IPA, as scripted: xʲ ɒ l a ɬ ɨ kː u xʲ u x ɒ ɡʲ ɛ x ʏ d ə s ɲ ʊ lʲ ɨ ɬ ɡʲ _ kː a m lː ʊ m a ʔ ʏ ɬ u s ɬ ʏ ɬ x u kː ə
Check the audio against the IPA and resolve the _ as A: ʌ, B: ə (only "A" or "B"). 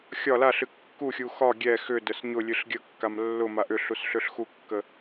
B